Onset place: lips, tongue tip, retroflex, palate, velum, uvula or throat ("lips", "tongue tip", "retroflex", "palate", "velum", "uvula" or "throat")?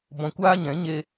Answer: lips